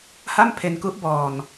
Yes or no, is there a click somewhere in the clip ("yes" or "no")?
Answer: no